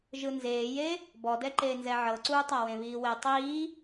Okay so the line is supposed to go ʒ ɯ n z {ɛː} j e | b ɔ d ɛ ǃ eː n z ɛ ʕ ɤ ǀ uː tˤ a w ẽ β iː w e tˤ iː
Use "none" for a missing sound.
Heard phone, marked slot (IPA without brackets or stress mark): eː